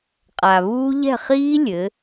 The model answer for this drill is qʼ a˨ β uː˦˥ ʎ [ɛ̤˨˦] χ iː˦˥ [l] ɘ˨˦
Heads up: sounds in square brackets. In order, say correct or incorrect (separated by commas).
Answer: incorrect, incorrect